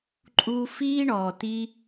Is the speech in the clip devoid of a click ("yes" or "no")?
no